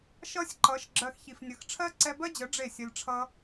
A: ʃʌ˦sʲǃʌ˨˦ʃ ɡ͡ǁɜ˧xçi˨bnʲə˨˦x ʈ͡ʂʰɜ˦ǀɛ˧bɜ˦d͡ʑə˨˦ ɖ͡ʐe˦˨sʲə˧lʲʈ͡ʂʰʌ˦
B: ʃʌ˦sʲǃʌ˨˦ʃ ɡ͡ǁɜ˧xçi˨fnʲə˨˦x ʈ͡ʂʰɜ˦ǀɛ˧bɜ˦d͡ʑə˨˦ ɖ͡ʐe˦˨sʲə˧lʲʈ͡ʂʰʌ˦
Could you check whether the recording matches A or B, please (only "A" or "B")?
B